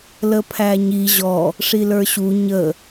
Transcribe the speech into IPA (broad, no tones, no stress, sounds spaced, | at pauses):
l ə pʰ æ ɲ i ʑ ɔ | ʂ i l ə˞ ɕ u ɲ ə